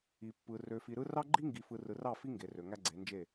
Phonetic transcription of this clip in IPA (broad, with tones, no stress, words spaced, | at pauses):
i˨pːɯ˨ rø˨fi˨ɾɯ˦ rɑ˦ɡ͡ǃi˦ŋɡi˨fɯ˨ rɯ˨rɑ˦˨fi˦ ŋɡe˨rø˨ ŋæ˦ɡ͡ǀe˨˦nd͡ʒe˦˨